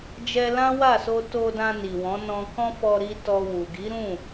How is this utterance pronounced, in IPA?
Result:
d͡ʒɛ˧lã˦wa˦˨so˧ to˧dã˧ ni˨wɔ̃˨˦nɔ̃˧ kɔ̃˦fɔ˧ ɾi˧ tɔ˧wu˨ ɡi˨˦ɾũ˦˨

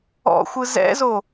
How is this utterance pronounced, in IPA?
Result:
ɔ̰xʷɯ zɛ̰zo

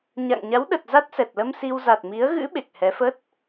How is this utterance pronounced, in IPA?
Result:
ɲa̰˧˨ŋ ɲa˨˦wɗə˨˩t̚ za˦˥t̚sɛ˨˩t̚lə˧msi˧w za˨˩t̚mi˨˦ə̯ ɣɨ̰˧˥ ɓe˨˩k̚hɛ˨˦fə˦˥t̚

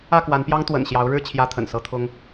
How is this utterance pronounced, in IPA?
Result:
ä˥˨kwa˨˦npjɑ˦ŋ t̪wə̰˨˩nɕjɑ˨˦ʊ̯ɻɻ̩˥˨ t͡ɕʰjä˦t̪ʰə̰˨˩nsɤ˦t̪ʰʊ˦ŋ

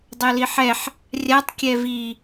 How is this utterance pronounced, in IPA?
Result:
dˤɤliħɛħ | rʲatˤ kʲɛvi

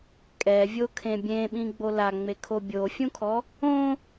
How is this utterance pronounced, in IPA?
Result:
kʼɛvʲokʰẽ bʲẽɓĩɡ͡bo laŋ͡mekʰo bʲofʲũkʰɔ | õ

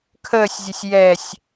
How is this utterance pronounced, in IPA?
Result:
kʰəːsʲzʲəsʲ jɛsʲ

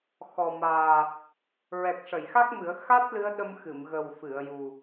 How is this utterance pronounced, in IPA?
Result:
xɔ˨˩maː˨˩ | ɹɛ˨˩k̚ʂə˨˩˨jxa˦˥k̚mɨ˨˩˦ə̯ xa˦˥t̚ lɨ˧˥ə̯ɗə˧mxɨ˨˩˨m ɣə˨˩w fɨ˨˩˨ə̯ju˨˩

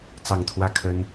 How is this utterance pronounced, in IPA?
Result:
t͡sɑ˥˨ŋt̪ʰwä˥˨ kʰə˦n

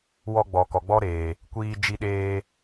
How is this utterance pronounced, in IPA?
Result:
wɔ˧ɡ͡bɔ˨ kɔ˨ɡ͡bɔ˦ɾeː˨ | kʷiː˧d͡ʒi˧ɗeː˧

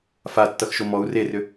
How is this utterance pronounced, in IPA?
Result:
fatːʌxʃo mɔu̯ rerʏ

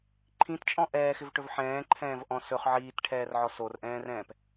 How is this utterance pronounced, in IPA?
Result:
ǃʰĩtt͡ʃʼɔ̃ ʔɛːxɪvʈɵv ħɛ̃ːǃʰɛ̃ːvʔɔ̃ sɵχ ʕiːtʈʰɛːrʕɔ sorʔɛ̃ːrɛ̃ːp

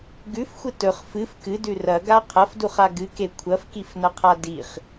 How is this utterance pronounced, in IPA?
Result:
ɡʉfxʷɨ tɵχ fɨf kɨdʉ rɐɡa qʰɐfduχa ɡɨke kʷʰɐfkifnɐqʰa diχ

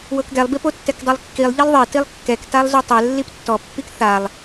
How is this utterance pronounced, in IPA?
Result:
wɤkɡɛlˠbip otːɛkdˤɤlˠkːilˠ ʎilˠðˤe tilˠkːɛktalˠ zutˤɛ lːiptːɔ pːikθalˠ

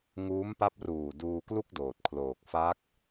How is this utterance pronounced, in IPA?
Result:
ŋuː˦˥mpa˦˥p̚ruː˨˩ duː˧klu˥˩k̚doː˨˩t̚ kʰloː˨˩k̚fa˦˥k̚

